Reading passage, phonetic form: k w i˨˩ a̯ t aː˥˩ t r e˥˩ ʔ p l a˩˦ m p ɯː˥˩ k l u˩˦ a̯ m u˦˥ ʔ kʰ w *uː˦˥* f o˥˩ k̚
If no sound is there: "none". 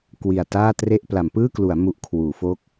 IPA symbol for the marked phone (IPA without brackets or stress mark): uː˩˦